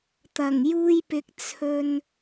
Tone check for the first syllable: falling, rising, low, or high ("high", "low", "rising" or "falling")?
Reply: low